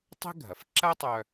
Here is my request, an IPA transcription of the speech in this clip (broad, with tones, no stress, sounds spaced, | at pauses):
tˤ e̤˥ ɡʱ ɐ˩ f ǁ ɐ˥ tˤ œ˧